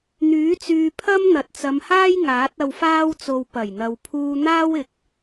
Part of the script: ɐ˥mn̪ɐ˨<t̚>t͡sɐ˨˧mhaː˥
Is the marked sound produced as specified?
yes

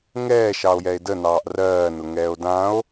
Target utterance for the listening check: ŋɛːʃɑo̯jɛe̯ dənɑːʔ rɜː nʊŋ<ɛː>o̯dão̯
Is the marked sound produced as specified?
yes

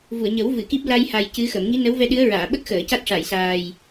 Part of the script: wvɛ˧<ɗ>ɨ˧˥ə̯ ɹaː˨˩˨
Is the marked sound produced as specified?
yes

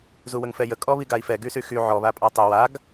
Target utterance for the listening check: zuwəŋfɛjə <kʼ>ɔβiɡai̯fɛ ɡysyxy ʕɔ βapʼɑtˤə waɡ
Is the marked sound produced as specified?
yes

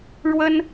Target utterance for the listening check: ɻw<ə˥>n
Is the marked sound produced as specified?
yes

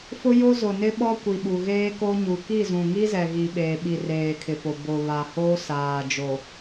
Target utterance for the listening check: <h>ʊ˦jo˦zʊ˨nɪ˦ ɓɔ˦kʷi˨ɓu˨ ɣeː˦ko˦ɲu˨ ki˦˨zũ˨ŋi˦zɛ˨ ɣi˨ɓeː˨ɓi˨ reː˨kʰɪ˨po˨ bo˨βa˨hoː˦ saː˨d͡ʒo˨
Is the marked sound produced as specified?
no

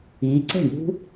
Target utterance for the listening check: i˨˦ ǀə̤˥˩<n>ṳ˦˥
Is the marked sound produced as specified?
no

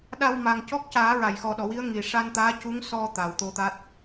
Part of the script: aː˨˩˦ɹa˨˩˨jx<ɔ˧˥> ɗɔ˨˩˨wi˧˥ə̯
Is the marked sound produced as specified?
no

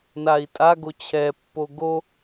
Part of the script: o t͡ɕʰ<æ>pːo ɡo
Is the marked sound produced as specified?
no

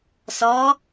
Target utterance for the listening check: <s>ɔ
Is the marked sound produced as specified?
yes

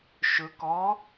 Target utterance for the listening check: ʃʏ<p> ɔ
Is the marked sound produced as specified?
no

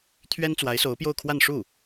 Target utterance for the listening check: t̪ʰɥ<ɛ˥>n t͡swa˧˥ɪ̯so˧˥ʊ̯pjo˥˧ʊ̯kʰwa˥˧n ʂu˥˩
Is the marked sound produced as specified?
yes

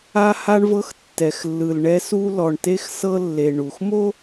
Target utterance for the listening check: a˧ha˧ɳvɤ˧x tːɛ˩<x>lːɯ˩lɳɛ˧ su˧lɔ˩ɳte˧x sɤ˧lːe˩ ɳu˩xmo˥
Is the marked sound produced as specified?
yes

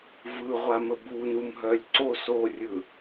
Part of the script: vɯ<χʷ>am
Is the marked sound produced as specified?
no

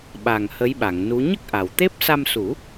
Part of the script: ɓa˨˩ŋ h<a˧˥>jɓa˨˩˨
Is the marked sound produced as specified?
no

